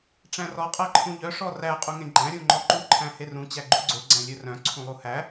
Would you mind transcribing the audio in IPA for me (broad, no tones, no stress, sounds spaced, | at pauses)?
ʈ͡ʂ æ̃ r ɔ qʼ æ ǃʰ ũ ʎ œ ʂ ɔ r æ qʼ u ŋ ẽ ɡ͡ǃ æ̃ ɾʲ ũ ŋ͡ǃ ɔ ǃ u ǃʰ æ̃ h e r ũ t͡ɕ æ ɡ͡ǃ u ɡ͡ǀ ɵ ɡ͡ǀ æ̃ lʲ ɵ r œ̃ ǀʰ ũ lˠ u h æ